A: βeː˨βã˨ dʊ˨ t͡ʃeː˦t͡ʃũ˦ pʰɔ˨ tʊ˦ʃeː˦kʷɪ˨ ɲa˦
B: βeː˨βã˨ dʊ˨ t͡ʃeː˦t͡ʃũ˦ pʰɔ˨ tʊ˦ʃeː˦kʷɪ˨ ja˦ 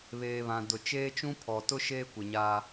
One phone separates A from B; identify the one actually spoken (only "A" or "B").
A